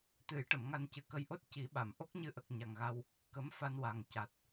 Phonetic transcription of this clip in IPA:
t̪ ɨ˨˩˦ j ʈ ə˨˩˨ m ŋ a˧ n c ɨ˨˩ k ə˧˥ j ʔ o˦˥ t̚ c i˨˩˦ ɓ a˨˩˨ m ʔ o˦˥ k̚ ɲ ɨ˧ ʔ ə˨˩ k̚ ɲ a˨˩ ŋ ɣ a˧ w | k ə˧˥ m f a˧ n w a˨˩ ŋ c a˨˩ t̚

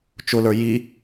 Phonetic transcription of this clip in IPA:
t͡ʃ ʊ l ə˞ j i

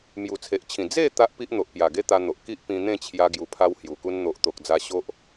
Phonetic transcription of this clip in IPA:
m j u˨˩ t͡sʰ e˨ ʔ t͡ɕʰ ĩ˨˩ d͡z e˥˧ t̪ a˦ ʔ p i˦ ʔ n̪ o˨ ʔ p j a˨˩ ɡ e˦ t̪ a˧ n̪ o˨ ʔ k i˦ ʔ p ĩ˧ n̪ ẽ˥˧ t͡ɕʰ j a˧ ɡ j u˧ pʰ a˦ w h j u˨˩ k u˦ n n̪ o˨ ʔ t̪ o˨ k̚ d͡z a˧ ɕ o˦ ʔ

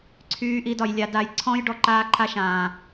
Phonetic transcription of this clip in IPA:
ǀʰ yː˦ ʔ i˦ d ɒ˧ j lʲ a˧ d a˧ j ǀʰ ɔ̃˦ j ɖ ɔ˧ ǃ aː˦ ǃʰ a˦ ʃ ãː˨

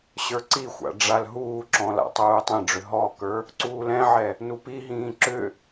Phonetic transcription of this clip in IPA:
ɕ ə˞ ǀ i xʷ a̰ ɖ͡ʐ a l ɦ uː ǁ ɔ̃ l a̰ tˤ uː tˤ ɛ̃ ɖ͡ʐ ʏ ɦ ɔ k ə˞ | ǀ uː l ɛ̃ ʕ ɛ | n u p i ɦ ĩː ǁ ʏ

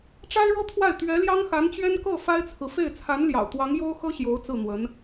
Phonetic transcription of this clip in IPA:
ʈ͡ʂ a˥ ɪ̯ ɻ ɤ˥ t̪ʰ w a˥˩ ɪ̯ t̪ ɥ ɛ˧˥ l j ɑ˥ ŋ x a˧˥ n t͡ɕ ɥ ɛ˥ n k ɤ˥˩ f a˥ ɪ̯ t͡sʰ ɹ̩˨ f e˥˩ ɪ̯ t͡sʰ a˧˥ n l j ɑ̰˨˩ ʊ̯ t̪ w ɑ˧˥ ŋ j o˥ ʊ̯ x ɤ˥ ɕ j o˧˥ ʊ̯ t͡s ɹ̩˥˩ n̪ w ə˧˥ n

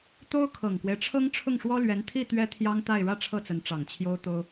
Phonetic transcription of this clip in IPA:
t̪ o˥ ʊ̯ kʰ ɤ˨˩ ŋ k w e˦ ɪ̯ ʈ͡ʂʰ ɤ˥ ŋ ʈ͡ʂʰ ʊ˥˩ ŋ ʂ w ɔ˥ l ɥ ɛ˧˥ n t̪ʰ i˥˩ t̪ ɥ ɛ˥ t̪ʰ j ɑ˥ ŋ t̪ a˥˧ ɪ̯ ɻ ä˥˧ ʈ͡ʂʰ ɤ˥˩ t͡s ə˧˥ n ʈ͡ʂ ɑ˨˩ ŋ t͡ɕʰ j o˥ ʊ̯ t̪ o˥ ʊ̯

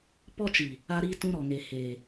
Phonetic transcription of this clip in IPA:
p ɔ˦ t͡ʃ i˨ | a˦ ɾ i˦ t ũ˦ ɾ ɔ˨ ŋ e˨ h e˨

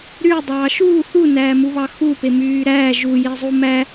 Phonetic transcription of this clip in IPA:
ɾ y dˤ ɑː ʃ uː θ u n æː m u β ɑ x u p e m yː ɾ æː ʒ u j e zˤ u m æ

